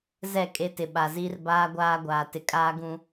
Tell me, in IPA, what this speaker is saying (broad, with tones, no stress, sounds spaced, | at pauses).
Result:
z ɛ˦˨ kʼ e˦ t ɪ˨ ɓ a˨ z i˦ r b aː˦ ɡʷ aː˦ ɡʷ aː˨ t ɪ˨ kʼ aː˦ ɡ ũ˦